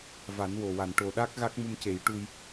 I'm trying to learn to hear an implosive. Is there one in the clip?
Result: yes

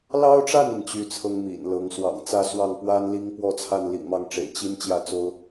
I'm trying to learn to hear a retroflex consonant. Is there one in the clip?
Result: yes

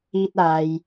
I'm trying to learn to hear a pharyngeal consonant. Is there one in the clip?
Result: no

